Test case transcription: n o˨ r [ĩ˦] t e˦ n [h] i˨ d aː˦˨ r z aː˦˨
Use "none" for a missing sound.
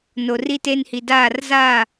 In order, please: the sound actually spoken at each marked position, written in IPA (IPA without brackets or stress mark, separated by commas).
i˦, h